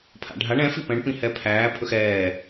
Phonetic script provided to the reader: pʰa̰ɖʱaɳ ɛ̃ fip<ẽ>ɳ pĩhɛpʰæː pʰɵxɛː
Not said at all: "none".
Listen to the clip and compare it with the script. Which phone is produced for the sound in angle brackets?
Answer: ɛ̃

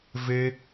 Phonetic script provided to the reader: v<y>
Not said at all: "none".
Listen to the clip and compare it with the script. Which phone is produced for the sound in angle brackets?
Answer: e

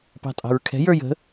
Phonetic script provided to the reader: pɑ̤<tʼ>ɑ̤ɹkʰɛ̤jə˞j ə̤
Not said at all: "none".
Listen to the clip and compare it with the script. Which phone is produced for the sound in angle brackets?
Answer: tʼ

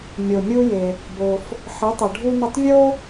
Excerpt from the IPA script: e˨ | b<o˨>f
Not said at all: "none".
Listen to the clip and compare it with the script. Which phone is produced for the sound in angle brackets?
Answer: o˨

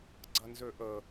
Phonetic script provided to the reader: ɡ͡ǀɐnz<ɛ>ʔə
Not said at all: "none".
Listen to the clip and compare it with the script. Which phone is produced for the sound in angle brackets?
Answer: ø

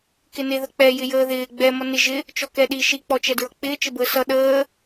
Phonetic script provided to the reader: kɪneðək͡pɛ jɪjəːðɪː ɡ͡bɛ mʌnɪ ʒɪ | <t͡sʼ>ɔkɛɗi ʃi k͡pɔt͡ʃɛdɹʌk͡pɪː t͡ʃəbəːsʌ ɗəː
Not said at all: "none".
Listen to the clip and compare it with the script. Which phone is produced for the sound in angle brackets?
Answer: t͡ʃ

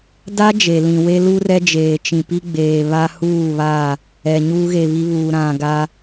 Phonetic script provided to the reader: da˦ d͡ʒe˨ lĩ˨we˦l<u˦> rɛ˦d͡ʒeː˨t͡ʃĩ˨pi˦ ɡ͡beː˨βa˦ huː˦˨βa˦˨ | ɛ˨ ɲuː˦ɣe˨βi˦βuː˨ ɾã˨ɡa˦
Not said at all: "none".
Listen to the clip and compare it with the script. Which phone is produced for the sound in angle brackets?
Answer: u˦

